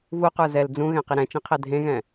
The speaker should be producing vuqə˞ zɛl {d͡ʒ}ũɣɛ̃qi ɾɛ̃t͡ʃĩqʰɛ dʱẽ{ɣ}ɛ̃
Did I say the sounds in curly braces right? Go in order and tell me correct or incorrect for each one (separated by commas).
incorrect, correct